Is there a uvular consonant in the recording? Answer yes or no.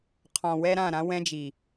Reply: yes